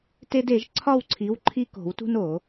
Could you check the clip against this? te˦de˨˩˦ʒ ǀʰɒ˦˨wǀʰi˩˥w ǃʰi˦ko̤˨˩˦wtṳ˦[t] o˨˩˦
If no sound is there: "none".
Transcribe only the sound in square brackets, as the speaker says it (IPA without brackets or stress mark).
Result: n